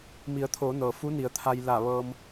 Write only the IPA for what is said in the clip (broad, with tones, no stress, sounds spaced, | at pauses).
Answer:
m i˩˧ ə̯ t̪ʰ oː˩˧ n ɤː˩ f u˧˥ n i˩˧ ə̯ t̪ʰ a˧ j l a˧˩ ʋ ɤː˧ m